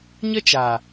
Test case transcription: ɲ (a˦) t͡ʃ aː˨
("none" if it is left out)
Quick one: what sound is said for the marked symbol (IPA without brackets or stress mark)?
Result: ə˦